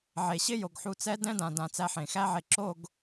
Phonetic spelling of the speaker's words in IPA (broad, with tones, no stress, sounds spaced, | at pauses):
ʕ e˨ ɕ ɪ˦ j o˨ ɡ ħ u˨ t͡s ɛ˦ d ɛ̃˦ d ã˨ d ã˨ t͡s æ˦ ħ ẽ˨ x æ˦ ʕ e˨ ǁ o˦˨ ɡ